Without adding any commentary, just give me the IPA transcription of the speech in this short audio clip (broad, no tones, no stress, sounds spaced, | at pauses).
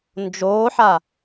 n d͡ʒ oː ħ a